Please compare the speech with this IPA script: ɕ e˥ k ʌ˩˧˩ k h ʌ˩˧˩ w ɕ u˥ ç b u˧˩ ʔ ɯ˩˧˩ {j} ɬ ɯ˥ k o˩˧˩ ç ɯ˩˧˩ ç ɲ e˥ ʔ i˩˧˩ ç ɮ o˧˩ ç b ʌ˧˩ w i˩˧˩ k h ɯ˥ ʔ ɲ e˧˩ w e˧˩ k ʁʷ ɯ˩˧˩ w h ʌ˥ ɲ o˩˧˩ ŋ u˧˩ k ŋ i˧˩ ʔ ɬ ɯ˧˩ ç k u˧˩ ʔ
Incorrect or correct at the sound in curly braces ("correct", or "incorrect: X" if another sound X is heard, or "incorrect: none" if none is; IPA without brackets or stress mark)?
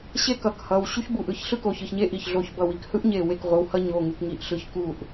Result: incorrect: ç